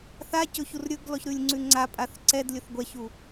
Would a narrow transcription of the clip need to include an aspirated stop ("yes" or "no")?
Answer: no